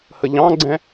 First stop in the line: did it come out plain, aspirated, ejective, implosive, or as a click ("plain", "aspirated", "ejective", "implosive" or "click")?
click